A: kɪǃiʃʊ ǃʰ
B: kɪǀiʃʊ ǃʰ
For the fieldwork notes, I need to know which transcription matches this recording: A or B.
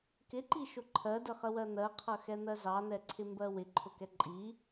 A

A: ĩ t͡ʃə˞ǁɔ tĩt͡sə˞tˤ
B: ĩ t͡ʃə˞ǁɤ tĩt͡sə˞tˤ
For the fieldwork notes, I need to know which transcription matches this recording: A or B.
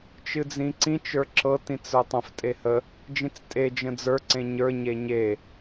B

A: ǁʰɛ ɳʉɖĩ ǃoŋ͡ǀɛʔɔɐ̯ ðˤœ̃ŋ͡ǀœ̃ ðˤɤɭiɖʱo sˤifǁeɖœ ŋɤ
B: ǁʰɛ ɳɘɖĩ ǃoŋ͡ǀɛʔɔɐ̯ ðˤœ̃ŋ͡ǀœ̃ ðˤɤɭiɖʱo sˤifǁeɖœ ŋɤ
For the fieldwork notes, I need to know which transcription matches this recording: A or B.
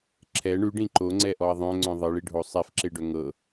A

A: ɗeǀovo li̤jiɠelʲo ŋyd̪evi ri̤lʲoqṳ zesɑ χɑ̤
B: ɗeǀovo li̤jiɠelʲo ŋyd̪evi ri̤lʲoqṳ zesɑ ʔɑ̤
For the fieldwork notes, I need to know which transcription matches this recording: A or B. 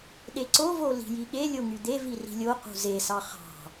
A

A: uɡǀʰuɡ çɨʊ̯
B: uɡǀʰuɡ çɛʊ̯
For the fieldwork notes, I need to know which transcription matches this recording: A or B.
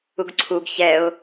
B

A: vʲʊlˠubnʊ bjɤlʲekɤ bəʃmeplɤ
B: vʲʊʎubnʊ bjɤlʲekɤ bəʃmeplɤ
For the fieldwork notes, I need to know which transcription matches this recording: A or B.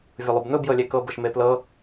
A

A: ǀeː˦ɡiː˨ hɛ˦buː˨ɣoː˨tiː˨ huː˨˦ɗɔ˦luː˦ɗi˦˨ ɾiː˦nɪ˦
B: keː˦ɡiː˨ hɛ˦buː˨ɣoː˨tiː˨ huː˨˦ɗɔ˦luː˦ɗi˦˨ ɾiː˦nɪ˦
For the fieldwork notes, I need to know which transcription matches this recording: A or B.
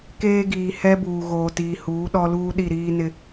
B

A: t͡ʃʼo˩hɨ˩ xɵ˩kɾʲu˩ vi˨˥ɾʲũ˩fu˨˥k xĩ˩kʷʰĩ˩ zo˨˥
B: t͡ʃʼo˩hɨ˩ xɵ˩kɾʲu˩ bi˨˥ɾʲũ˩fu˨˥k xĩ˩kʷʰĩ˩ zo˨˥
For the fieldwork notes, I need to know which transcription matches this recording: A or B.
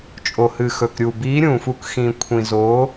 B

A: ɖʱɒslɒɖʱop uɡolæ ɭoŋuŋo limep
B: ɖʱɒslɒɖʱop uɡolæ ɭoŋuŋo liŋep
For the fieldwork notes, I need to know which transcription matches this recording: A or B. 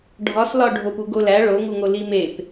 A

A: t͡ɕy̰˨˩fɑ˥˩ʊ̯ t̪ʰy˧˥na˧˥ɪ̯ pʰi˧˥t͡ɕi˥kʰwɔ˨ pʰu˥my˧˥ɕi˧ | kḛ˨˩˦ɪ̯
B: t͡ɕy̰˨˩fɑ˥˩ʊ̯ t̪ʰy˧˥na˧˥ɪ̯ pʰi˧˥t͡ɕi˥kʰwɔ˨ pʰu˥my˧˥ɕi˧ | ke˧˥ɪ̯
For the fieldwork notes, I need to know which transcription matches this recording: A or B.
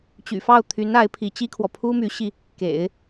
A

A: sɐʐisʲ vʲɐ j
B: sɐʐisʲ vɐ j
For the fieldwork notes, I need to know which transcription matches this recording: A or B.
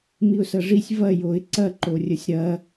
B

